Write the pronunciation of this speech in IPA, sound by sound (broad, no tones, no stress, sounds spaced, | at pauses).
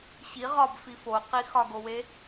ɕ i ʁ ɒ b f i f o q i x ɒ ɡ o w e